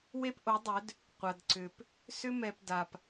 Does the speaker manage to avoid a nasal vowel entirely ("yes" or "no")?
yes